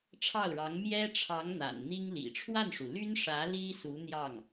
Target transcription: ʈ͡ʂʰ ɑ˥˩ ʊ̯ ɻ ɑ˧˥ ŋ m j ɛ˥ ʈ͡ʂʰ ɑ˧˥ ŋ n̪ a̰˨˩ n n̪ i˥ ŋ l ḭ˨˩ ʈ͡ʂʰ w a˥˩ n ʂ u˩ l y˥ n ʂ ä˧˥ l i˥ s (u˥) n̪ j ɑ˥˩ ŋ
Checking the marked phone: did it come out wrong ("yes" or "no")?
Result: yes